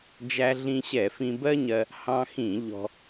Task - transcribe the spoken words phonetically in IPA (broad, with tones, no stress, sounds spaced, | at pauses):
d͡ʒ æ˧ ɮ ĩ˧ ɕ ɛ˧˩˧ f ĩ˧ b ɜ˥ ɲ ɜ˧ | h ɑ̃˧ x ĩ˧˩˧ ʎ ɔ̤˧